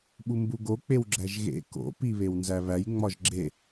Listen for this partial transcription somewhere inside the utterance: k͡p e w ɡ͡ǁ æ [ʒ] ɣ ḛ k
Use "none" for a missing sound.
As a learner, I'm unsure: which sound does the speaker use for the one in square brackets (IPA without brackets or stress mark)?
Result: ʒ